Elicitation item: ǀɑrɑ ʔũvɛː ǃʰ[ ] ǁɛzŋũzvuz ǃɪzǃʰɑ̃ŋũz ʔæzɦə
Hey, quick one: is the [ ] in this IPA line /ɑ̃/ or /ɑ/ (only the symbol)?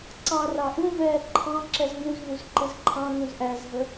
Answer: ɑ̃